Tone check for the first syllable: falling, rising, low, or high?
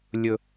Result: high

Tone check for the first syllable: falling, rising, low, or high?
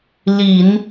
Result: low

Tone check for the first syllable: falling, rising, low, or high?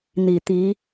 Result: low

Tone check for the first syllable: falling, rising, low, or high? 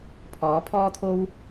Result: rising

